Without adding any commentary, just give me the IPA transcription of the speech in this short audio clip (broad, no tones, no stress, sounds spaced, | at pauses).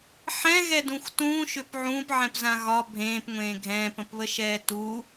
ħ ɛ̃ ɣ ɛ d ũ xʷ t ũː ʃ ʏ p ʕ ũː p ʕ ɛ̃ p z ã ɣ ɒ bʱ ẽː p ŋʷ ẽː ɡʱ ɛ̃ː p ə̃ p β ə ʃ ɛː t u